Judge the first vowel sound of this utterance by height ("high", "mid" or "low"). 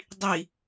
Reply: high